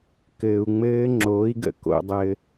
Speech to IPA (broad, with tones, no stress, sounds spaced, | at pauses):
k ɘː˧ u̯ ŋ͡m ɘː˦˥ ŋ͡ǁ oː˨˥ i̯ ɡ ə̰˧ k o̰˧ dˤ ɘ˧